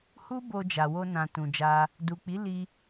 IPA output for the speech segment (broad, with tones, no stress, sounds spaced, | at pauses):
h u˦ b o˧ d͡ʒ a˨ w o˧ n ã˨ t ũ˨ d͡ʒ a˧ | d u˨ k͡p i˨˦ l i˧